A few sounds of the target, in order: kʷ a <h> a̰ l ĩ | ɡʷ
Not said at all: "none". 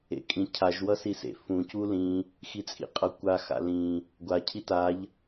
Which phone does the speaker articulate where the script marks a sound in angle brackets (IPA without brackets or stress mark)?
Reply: x